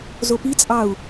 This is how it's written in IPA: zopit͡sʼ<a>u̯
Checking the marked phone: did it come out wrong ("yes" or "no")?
yes